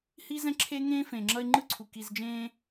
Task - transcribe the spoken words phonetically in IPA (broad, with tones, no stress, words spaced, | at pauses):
hi˥ zɛ̃˥ǁʰe˥ ŋẽː˥fẽ˩ŋ͡ǁʌ˦ɪ̯ ŋ͡ǃɯ˥ǀʰu˩ ki˨zd͡ʒẽː˦